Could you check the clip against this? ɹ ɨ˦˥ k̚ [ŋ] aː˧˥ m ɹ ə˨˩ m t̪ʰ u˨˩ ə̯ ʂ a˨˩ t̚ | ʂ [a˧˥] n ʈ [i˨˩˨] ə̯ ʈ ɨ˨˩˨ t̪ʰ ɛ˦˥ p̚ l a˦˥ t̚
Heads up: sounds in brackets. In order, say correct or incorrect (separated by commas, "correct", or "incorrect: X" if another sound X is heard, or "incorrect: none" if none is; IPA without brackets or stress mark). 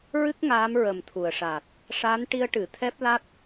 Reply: correct, correct, incorrect: i˧